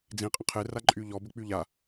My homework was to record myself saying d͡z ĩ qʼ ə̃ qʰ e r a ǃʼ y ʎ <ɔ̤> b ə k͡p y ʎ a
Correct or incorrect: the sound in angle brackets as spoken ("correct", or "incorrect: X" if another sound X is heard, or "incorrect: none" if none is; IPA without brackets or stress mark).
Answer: incorrect: ɔ